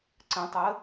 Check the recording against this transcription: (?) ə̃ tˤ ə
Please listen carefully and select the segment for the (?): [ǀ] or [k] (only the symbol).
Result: ǀ